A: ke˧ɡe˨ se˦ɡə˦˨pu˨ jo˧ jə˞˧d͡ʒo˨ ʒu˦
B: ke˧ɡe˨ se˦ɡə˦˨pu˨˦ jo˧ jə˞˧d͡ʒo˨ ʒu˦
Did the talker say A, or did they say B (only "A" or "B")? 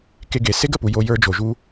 A